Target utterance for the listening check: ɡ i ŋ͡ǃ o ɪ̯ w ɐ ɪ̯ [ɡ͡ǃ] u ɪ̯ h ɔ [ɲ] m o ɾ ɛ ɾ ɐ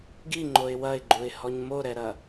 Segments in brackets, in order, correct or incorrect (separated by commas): correct, correct